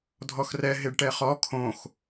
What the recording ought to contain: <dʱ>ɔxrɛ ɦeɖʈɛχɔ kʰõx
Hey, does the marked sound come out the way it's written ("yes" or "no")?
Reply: yes